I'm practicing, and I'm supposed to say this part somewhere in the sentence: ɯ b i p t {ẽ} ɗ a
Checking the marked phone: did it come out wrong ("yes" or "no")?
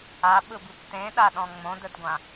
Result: no